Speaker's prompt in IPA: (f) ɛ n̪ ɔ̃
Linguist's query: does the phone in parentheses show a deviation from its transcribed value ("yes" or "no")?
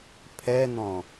yes